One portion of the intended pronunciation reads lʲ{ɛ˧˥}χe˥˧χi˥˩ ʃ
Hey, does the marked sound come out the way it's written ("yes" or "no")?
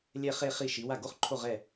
no